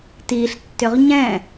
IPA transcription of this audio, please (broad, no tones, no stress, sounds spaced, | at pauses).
t i ɬ tː ʏ ʁ ɲ ɛ̃